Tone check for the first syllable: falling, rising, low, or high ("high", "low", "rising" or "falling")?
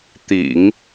low